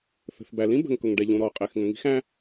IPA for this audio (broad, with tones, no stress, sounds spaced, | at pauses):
θ ə̤˩ θ b æ˩ l ĩ˥ b ə̤˩ ŋ k ʊ˩ ŋ ɖ ɛ˩ ʎ ũ˩ ɾ ɔ˩ qʼ ɛ˩ x ŋ ə̃˩ ŋ i̤˥ x æ̃˥